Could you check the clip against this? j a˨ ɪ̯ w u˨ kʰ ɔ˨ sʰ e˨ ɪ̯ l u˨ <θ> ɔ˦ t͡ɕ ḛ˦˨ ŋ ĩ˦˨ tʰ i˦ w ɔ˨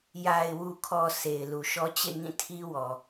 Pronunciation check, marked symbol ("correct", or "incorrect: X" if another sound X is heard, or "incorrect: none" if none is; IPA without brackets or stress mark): incorrect: ʃ